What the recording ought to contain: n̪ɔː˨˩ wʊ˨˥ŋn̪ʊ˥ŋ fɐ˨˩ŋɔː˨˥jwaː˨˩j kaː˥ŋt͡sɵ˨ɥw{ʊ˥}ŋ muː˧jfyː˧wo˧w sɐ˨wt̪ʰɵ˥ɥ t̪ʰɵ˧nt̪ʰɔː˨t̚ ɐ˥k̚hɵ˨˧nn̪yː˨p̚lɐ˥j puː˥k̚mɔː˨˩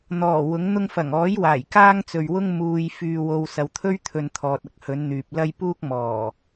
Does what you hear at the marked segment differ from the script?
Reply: no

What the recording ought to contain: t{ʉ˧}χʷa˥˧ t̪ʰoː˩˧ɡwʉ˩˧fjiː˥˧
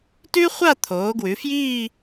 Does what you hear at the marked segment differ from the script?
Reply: yes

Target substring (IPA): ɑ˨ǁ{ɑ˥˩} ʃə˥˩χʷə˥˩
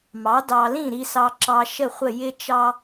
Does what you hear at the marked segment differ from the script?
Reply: yes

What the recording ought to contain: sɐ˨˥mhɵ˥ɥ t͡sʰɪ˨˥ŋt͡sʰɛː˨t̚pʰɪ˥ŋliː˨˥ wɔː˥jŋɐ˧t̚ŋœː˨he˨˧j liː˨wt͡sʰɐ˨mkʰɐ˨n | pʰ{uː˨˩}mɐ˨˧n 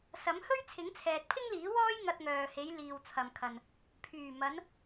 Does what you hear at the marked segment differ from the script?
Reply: yes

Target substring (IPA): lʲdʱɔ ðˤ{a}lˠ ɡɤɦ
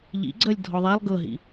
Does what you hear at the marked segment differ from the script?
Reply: no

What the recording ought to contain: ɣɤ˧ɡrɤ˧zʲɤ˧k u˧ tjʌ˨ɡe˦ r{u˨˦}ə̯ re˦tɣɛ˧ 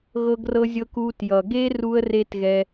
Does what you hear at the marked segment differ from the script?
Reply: yes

